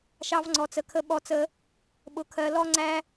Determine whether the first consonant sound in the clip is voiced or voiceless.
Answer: voiceless